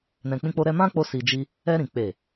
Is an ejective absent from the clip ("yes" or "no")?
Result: yes